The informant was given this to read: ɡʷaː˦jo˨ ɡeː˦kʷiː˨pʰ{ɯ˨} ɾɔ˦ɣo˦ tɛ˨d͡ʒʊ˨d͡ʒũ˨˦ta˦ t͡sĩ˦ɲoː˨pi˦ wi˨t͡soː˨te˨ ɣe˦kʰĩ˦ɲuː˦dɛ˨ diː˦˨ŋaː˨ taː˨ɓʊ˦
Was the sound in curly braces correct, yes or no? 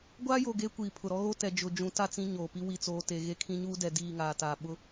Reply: no